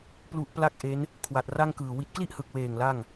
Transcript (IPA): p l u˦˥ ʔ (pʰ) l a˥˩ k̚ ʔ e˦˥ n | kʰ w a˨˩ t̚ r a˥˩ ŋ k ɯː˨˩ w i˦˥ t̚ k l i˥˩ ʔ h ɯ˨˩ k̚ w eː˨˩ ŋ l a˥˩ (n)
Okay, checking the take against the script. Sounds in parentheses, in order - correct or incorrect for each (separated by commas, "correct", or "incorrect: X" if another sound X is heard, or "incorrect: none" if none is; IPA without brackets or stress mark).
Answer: incorrect: p, incorrect: ŋ